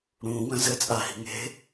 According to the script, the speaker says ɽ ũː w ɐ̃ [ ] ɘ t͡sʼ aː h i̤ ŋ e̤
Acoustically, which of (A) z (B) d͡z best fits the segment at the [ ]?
A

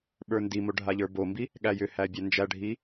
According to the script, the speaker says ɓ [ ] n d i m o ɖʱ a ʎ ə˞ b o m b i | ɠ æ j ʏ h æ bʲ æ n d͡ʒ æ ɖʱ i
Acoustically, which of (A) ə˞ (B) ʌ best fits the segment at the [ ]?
A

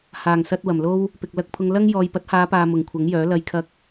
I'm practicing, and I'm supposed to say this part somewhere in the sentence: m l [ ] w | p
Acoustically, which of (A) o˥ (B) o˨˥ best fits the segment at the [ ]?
A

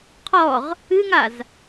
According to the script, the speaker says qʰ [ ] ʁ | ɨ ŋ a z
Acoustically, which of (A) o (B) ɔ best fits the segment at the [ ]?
B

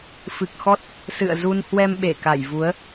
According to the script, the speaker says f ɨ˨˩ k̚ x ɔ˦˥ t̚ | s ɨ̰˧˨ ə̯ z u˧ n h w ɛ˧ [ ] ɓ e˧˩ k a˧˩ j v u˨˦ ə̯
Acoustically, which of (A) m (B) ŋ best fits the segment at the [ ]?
A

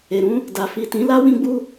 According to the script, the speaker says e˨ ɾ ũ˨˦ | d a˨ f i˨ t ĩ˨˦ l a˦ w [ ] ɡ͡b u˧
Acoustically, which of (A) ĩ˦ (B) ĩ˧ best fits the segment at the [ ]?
B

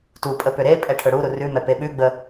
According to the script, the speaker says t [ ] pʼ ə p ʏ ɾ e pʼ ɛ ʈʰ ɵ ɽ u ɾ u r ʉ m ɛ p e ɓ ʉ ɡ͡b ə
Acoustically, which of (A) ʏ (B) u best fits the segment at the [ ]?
B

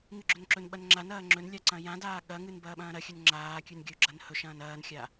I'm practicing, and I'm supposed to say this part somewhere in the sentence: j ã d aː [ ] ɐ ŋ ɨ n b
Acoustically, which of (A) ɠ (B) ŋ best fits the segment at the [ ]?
A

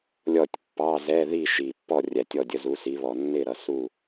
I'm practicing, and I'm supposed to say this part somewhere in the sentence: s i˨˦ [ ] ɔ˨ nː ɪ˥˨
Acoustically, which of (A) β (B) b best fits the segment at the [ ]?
A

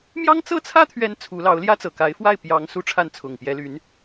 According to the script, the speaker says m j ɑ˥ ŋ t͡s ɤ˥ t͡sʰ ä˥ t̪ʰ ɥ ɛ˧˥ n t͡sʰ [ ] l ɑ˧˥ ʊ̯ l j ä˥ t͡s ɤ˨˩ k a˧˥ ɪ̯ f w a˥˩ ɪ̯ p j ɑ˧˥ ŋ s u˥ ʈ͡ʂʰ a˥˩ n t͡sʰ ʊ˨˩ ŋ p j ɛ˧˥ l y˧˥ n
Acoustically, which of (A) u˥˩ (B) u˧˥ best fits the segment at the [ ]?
B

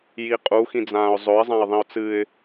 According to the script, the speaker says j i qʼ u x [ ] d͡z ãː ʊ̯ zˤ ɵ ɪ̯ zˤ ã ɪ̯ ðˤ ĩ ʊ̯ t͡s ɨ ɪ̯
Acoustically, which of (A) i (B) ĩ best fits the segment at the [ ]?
B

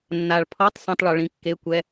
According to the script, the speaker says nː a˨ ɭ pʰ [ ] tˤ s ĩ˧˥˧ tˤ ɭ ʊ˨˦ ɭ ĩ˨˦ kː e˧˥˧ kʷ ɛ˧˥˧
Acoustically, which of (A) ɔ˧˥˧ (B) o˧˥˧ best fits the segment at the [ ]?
A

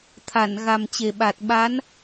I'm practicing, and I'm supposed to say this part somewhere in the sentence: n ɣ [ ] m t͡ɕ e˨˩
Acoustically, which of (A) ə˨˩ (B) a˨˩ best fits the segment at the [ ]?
B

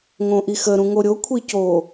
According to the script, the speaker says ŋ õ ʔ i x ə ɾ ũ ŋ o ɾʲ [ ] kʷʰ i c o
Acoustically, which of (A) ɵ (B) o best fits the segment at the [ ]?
B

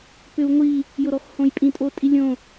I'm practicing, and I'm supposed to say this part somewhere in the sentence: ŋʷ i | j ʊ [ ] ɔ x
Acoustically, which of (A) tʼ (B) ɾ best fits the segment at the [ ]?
B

